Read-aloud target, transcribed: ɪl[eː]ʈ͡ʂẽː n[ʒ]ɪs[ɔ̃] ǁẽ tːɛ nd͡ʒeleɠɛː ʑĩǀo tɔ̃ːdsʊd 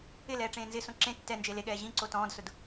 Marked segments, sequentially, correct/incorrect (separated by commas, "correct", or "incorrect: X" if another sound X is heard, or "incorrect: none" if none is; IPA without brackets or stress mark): incorrect: ɛː, incorrect: z, incorrect: õ